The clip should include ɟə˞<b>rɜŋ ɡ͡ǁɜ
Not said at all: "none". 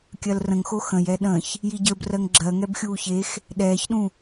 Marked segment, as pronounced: b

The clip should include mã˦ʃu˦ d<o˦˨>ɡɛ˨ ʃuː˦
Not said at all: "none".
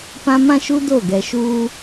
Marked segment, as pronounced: o˦˨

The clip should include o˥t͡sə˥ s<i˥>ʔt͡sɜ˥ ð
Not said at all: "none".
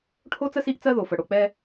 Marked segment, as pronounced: i˥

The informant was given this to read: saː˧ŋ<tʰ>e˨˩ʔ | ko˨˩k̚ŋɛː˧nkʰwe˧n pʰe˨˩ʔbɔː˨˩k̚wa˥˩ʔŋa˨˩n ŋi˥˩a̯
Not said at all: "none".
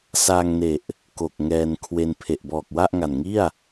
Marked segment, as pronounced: n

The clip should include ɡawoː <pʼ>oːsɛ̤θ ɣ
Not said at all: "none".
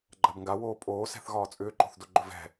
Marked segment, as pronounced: pʼ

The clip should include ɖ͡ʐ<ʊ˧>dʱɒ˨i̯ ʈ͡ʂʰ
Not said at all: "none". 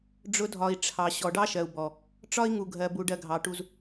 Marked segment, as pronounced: ʊ˧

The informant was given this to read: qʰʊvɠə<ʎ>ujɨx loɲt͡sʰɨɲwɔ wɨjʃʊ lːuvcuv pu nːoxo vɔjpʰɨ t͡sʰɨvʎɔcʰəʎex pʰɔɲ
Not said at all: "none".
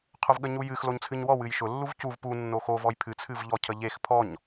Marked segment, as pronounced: ɲ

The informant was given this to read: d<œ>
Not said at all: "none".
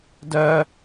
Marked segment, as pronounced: œ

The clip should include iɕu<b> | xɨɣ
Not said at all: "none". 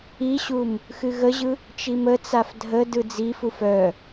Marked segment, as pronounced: m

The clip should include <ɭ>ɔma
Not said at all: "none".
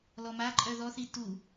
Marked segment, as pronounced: l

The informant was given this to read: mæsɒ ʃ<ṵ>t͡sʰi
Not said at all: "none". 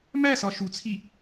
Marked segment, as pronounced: u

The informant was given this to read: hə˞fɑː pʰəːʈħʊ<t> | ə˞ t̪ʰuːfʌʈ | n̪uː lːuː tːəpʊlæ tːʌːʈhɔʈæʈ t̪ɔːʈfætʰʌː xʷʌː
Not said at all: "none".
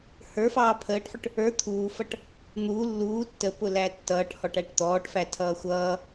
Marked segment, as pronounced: ʈ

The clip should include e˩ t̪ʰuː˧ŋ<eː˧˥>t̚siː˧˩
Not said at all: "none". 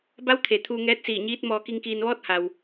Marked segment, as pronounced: ɛː˧˥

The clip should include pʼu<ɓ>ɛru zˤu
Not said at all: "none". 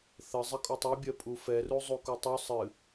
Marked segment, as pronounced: f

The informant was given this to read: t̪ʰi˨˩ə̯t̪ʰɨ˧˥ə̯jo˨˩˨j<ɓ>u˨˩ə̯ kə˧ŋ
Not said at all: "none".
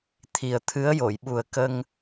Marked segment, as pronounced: ɓ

